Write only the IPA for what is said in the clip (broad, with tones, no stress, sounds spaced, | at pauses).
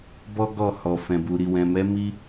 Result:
b ɔ˦ ɡ ɔ˦˨ h ɔ˨ f ɛ̃˨ b u˨ ɾ i˨ w ɛ̃˨ m ɛ˨˦ m i˦